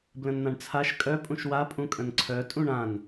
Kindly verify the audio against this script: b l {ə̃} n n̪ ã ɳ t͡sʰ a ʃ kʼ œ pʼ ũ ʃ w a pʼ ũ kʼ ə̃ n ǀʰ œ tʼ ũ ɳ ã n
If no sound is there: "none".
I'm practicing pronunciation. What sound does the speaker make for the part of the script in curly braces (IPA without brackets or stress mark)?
ə̃